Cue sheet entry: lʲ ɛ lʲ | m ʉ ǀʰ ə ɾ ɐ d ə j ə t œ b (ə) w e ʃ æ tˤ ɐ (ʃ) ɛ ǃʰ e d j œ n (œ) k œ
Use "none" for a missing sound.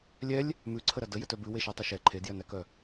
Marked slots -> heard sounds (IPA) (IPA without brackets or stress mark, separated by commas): ʉ, ʃ, æ